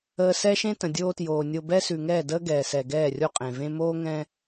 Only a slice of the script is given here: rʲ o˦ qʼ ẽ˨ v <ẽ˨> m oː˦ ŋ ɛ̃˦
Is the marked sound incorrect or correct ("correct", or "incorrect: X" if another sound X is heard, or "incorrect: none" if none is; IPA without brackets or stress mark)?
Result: incorrect: ẽ˦